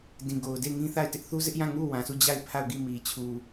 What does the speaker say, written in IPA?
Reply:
d ĩ˨ ɡ o˨ ʊ̯ d e˦˨ ɪ̯ ŋ ĩ˦ θ a˦˨ ɪ̯ t ɪ˦ ʔ θ u˦ z ɪ˦ ʔ j ã˦˨ ŋ u˦˨ w ã˨ s u˦˨ d͡ʑ a˦˨ ɪ̯ pʰ a˦˨ ʊ̯ ɡ i˦˨ m i˨ t͡ɕʰ u˨

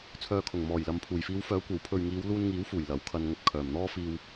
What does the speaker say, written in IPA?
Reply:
t͡sʰ œː˨ kʰ ʊ˨˩ ŋ m ɔː˨˩ j l ɐ˨ m pʰ uː˨˩ j f iː˨˧ w f œː˨˥ kʷ ɐ˨˥ w pʰ ɵ˧ ɥ ŋ iː˨˧ w l uː˧ n ŋ iː˨˥ w f uː˨˩ j l ɐ˨˥ w kʰ ɐ˧ n ŋ ɵ˧ t̚ kʰ œː˨˩ m n̪ ɔː˥ f iː˧ w

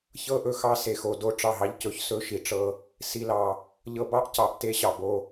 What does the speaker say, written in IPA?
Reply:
ç ɤ˦ ʔ ɵ˨ x ɑ˦ s e˨ x o˨ d o˦ ʈ͡ʂ ɑ˦˨ ɦ ɑ˦ ʎ c ɵ˨˦ ç s ɵ˦ ʃ i˨ ʈ͡ʂ ɤ˦ | s i˨ l ɑ˨ | ʎ ɤ˨ b ɑ˦ ʔ c ɑ˨ ʔ t e˦ ɕ ɑ˨ b o˦

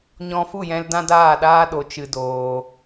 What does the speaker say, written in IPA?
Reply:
ɲ ɔ̃˧ f u˦˨ j ɛ̃˧ l d ã˦ d aː˦˨ ɗ aː˦ ɗ o˨˦ t͡ʃ ɨ˧ d oː˧

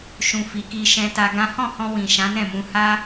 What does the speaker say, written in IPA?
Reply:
ʃ ũ˧ f i˨ k i˧ ʃ ɛ̃˧ t a˧ ɡ ã˦ h ɔ̃˦˨ h ɔ̃˧ w ĩ˨ ʃ ã˨˦ n ɛ̃˦˨ m ũ˧ h a˦

